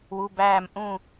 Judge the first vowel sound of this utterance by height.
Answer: high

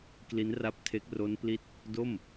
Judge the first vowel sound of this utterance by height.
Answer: high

